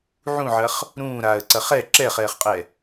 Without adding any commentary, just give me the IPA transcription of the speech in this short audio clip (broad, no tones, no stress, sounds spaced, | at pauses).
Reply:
ʕ ũ ʕ ɐ χ | ɾ ũː ɾ aː ə̯ ǀ ɐ χ ɛ ǁ ɛ χ ɛː χ qʼ ɛ